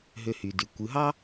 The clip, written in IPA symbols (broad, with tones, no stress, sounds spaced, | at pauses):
ɦ ø˧ h y˩ d y˩ kʷ ɯ˩˧ ɦ ɑ˥